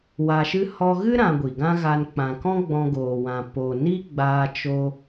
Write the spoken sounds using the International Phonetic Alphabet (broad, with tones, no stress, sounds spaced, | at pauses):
w a˧ ʃ ɨ˦ h ɔ˧ ɣ ɨ˦ ɾ ã˧ ɡʷ i˨ ɡ ã˦ ɣ a˧ n k͡p ã˨ k ɔ̃˦ ɡ͡b ɔ̃˧ ɡ oː˨ w ã˨ p o˨ n i˦ ɡ͡b aː˧ t͡ʃ o˧